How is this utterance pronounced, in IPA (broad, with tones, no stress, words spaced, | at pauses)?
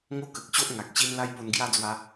ŋo˦ kə˨k̚ɕo˦ʔ ŋa˨k̚ɕi˦n la˦jpo˧nɡja˦d͡zwa˧